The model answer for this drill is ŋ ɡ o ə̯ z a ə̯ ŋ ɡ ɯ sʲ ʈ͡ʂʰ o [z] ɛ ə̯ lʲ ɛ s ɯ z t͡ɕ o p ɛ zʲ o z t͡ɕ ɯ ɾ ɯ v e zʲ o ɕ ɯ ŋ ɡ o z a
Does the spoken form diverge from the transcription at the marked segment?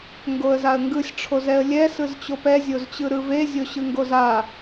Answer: no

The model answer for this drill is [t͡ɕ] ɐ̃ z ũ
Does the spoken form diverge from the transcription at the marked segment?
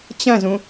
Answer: no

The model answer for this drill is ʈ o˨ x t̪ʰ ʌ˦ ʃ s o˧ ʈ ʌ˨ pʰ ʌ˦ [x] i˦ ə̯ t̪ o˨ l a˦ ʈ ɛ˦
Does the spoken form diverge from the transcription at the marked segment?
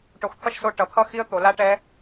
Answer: no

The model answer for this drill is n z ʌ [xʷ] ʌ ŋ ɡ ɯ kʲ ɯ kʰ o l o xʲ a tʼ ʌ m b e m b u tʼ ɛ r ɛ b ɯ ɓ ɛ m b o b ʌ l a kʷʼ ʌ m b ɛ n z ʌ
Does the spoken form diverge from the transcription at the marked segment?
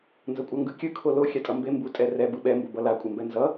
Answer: yes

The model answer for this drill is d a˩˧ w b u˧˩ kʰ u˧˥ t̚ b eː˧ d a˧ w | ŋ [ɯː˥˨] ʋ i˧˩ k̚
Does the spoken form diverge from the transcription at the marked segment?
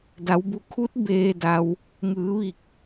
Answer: yes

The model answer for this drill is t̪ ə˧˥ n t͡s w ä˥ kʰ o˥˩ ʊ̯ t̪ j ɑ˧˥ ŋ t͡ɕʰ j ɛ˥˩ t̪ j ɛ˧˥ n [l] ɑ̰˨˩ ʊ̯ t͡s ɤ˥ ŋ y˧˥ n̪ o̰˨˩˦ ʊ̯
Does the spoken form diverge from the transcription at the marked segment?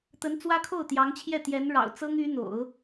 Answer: yes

